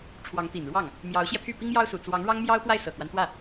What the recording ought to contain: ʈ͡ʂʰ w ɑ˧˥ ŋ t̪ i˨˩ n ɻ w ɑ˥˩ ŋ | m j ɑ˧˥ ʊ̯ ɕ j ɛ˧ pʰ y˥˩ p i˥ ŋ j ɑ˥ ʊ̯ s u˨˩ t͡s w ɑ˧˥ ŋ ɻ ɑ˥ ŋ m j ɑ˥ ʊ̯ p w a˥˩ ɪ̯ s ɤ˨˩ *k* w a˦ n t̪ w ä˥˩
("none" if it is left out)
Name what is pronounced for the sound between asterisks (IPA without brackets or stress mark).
k